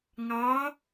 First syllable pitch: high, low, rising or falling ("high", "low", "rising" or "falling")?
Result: rising